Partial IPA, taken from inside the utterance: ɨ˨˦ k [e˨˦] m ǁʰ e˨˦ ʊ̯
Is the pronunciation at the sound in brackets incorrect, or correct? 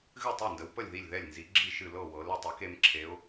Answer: correct